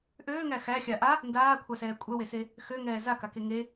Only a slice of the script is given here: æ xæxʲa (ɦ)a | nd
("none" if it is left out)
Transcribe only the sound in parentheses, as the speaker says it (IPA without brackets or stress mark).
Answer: ʔ